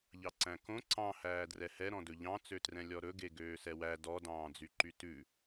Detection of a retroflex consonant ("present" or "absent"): absent